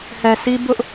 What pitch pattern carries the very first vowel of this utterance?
low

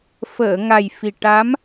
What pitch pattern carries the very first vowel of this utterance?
low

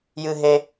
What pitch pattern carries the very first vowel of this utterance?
low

